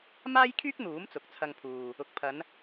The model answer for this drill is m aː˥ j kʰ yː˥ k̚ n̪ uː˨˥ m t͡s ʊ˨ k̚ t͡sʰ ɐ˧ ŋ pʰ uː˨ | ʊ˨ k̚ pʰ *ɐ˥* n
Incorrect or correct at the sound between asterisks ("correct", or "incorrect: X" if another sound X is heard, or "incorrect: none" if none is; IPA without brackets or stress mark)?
incorrect: ɐ˨˧